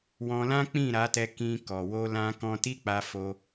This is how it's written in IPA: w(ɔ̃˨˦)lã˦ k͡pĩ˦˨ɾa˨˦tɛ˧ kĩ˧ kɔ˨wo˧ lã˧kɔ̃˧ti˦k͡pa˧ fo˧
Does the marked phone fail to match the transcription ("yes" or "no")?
yes